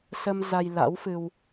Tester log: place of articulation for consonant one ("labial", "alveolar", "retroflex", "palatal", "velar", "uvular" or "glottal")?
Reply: alveolar